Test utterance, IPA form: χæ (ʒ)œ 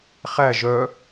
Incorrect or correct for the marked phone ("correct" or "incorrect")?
correct